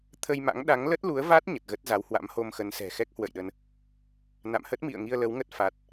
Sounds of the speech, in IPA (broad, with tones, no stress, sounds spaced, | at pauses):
t̪ʰ ə˧ j m a̰˧˥ ŋ ɗ a˨˦ ŋ l ə˦˥ t̚ l u˨˦ ə̯ v a˦˥ t̚ ɲ ə˨˩ t̚ ɣ ə˦˥ t̚ z a˨˦ w h w a̰˧˥ m h o˧ m x ə˨˦ n s ɛ̤˨˩ x ɛ˦˥ k̚ h w ə̰˧˨ j ɗ ə˧ n | n a̰˧˨ m h ə˦˥ t̚ m ḭ˧˨ ə̯ ŋ i˧ ə̯ l ə˨˦ w ŋ ə˦˥ t̚ f a˦˥ t̚